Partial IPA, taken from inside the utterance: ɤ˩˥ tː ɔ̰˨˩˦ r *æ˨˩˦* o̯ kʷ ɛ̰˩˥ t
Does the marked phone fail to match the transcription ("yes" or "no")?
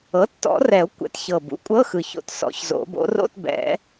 yes